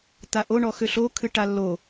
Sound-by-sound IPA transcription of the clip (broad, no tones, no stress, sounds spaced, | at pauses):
t̪ a ʔ o ɳ ɔ x ø ɬ o kʰ ɨ ʈ a lː o